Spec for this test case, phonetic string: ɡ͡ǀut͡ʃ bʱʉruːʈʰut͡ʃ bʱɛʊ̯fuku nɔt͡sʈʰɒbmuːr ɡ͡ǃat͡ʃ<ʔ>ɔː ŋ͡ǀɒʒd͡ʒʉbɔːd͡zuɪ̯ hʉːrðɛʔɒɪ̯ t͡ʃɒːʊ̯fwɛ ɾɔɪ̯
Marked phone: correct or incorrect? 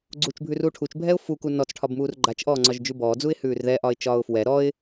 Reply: correct